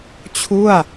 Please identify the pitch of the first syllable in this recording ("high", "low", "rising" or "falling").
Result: falling